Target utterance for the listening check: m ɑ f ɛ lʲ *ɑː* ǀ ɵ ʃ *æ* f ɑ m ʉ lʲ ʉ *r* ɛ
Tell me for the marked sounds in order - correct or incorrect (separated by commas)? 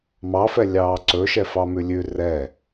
correct, incorrect, correct